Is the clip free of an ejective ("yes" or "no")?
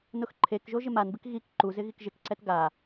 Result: yes